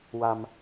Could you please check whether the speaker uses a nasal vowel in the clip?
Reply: no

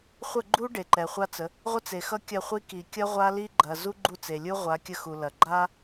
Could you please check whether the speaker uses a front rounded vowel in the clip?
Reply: no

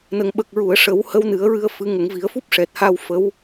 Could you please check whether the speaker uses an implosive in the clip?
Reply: yes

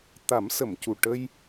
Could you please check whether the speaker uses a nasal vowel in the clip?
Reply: no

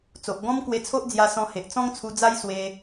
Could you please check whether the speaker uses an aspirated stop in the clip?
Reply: yes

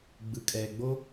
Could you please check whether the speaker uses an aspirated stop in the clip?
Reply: no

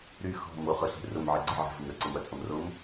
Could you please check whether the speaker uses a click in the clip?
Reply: yes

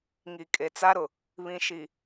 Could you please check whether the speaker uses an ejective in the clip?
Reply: yes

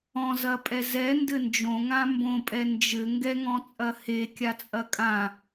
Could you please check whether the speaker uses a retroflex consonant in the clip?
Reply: no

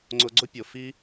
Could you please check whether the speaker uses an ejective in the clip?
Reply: no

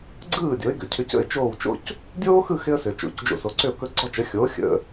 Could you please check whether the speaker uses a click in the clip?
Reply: yes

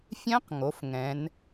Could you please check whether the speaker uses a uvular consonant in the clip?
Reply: yes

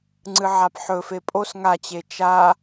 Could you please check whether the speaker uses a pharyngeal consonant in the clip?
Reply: yes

